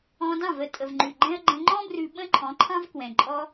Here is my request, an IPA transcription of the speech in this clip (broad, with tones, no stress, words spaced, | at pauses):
ɔ̃˧dɑ̃˦˨və˧ tʼə˨vŋ͡ǃʉ˨ɡ͡ǃɛ̃˦ə̯ ɡ͡ǃə̃˧ŋ͡ǃɔ̃˦brʉ˧ ɓə̃˦ǃʰɔ̃˨˦ǃʰɑ̃˦v kwɛ̃˨ǃʼɔ˦